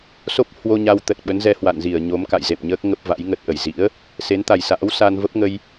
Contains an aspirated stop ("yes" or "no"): no